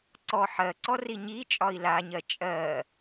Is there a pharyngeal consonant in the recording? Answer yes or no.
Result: yes